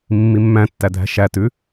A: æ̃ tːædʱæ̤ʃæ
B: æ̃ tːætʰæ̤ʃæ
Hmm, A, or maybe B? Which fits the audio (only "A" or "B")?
A